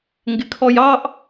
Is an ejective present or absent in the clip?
absent